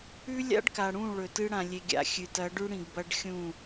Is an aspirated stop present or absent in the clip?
absent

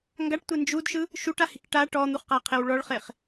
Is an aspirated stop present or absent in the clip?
present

